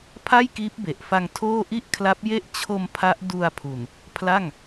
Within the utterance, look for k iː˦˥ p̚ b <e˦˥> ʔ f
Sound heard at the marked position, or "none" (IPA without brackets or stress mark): e˨˩